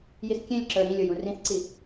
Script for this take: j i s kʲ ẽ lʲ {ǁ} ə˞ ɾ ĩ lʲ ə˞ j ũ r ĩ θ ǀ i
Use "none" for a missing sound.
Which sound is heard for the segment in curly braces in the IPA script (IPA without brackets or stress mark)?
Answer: ǁ